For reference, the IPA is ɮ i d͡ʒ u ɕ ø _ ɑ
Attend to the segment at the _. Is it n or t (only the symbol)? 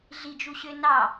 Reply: n